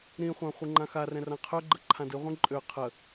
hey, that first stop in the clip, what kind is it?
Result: click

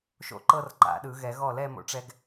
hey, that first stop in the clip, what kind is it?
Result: click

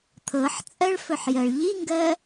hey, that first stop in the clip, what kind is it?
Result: aspirated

